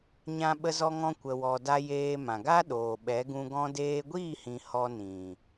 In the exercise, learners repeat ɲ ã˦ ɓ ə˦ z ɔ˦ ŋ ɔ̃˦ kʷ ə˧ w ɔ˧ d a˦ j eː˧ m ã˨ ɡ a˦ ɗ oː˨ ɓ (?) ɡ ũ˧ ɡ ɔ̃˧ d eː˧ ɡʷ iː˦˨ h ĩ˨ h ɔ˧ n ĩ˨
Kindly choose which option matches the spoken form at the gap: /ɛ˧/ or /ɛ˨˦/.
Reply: ɛ˨˦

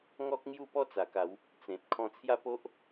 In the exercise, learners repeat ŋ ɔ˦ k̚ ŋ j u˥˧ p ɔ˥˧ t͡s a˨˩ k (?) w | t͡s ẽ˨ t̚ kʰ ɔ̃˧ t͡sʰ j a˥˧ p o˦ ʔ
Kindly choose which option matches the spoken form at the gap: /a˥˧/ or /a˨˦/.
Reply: a˨˦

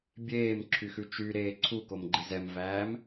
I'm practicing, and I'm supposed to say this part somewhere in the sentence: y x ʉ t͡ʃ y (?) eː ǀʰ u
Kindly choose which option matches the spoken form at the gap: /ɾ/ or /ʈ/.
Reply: ɾ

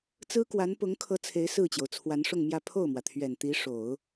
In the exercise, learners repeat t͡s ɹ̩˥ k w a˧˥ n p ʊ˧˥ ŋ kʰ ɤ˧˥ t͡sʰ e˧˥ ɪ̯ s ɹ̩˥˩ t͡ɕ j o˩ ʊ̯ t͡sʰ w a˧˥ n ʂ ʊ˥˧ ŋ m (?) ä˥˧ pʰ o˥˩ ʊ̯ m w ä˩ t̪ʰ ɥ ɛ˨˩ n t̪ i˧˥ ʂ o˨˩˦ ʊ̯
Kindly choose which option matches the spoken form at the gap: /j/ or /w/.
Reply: j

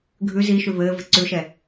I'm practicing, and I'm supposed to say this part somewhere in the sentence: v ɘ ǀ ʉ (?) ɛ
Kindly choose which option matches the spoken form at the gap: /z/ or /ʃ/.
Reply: ʃ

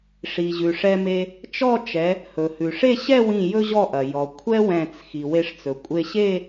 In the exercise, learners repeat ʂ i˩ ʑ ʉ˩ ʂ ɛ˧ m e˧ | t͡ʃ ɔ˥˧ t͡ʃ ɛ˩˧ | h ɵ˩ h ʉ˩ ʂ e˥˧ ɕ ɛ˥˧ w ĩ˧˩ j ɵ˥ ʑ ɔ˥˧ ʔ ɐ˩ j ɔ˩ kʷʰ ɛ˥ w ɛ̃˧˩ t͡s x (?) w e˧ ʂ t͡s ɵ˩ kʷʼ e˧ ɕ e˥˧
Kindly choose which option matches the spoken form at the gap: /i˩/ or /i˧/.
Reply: i˩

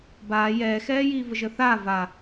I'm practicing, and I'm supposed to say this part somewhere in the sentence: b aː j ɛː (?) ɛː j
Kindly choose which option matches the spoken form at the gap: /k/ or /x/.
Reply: x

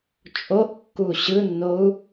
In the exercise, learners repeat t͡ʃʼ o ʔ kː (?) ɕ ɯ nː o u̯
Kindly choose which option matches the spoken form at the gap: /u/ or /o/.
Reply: u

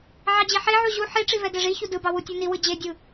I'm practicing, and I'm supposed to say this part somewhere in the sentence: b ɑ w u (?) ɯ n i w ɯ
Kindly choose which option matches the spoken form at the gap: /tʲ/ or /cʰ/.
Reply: tʲ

